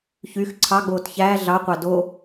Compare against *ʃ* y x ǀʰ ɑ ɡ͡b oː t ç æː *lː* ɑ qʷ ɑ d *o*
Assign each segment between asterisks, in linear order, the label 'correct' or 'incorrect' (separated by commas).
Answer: incorrect, incorrect, correct